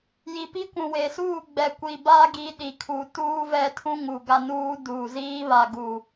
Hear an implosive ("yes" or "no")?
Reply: yes